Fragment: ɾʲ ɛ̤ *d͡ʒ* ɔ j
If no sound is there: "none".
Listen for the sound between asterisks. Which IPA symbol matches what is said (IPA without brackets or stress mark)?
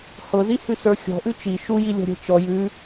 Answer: t͡ʃ